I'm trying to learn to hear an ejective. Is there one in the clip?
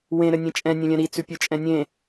yes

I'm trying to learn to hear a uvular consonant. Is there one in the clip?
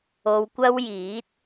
no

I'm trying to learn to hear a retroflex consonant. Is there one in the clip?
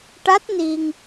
yes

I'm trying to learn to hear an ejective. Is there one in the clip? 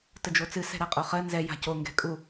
yes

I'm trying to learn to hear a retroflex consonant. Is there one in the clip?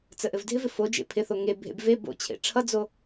yes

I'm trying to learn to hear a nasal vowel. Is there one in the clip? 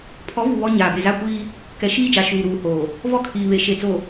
no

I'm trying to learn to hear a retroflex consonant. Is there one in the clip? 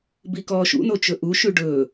yes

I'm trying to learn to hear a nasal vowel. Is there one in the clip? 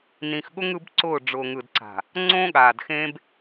yes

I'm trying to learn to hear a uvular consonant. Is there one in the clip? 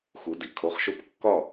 yes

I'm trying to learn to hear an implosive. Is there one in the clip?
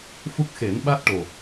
yes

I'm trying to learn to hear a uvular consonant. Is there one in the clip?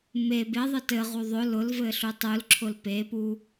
yes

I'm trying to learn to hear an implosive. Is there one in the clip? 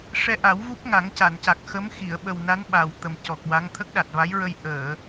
yes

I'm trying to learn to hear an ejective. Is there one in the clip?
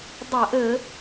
no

